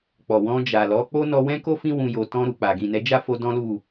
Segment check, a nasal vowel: present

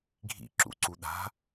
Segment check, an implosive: present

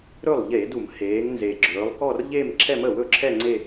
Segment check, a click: present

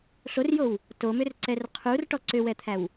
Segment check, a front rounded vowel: present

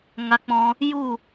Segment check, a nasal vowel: present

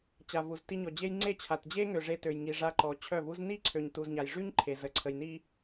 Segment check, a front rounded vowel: present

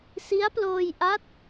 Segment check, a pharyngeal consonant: absent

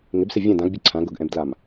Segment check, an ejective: absent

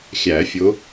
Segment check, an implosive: absent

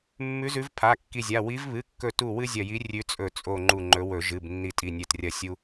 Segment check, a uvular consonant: absent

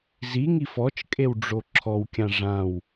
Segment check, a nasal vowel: present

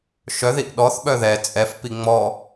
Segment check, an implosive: present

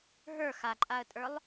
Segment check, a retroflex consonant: absent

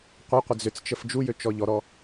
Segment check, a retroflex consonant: absent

